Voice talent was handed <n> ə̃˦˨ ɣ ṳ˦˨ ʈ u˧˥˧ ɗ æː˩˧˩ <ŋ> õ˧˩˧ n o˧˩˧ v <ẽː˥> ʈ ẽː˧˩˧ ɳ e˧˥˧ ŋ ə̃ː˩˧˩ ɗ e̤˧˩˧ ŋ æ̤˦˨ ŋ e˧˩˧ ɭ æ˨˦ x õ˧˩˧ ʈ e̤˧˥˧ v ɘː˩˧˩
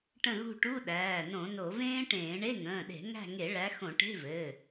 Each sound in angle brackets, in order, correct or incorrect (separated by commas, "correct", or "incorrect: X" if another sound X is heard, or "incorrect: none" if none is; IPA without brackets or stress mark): incorrect: ʈ, incorrect: n, correct